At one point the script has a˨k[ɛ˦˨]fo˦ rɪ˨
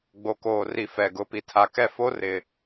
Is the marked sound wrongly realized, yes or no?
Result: no